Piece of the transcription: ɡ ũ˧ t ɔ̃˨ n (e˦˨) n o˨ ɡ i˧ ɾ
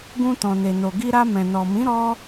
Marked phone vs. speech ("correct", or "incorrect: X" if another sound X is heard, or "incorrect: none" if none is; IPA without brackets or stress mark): incorrect: e˨